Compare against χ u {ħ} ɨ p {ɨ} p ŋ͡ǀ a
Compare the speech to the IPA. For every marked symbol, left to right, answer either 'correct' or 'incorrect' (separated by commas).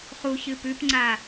incorrect, incorrect